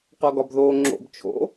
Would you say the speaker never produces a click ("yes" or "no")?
no